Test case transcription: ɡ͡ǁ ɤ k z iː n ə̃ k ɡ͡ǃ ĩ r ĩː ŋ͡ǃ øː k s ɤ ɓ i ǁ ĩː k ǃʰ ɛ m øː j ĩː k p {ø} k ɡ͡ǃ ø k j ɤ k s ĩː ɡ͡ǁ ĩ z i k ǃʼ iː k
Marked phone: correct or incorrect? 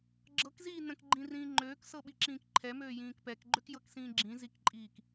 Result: incorrect